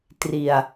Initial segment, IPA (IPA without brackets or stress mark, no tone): t